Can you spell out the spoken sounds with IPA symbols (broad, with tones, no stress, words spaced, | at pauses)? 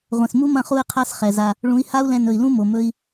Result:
ʁʷɛ̃˨smu˦ mɐ̃˦χu˦i̯qʰa˦s χɛ˨za˧ | ɭũ˨˦i̯ha˦u̯lɛ̃˧ nɵ˨i̯lũ˦mo˨ mɵ˦i̯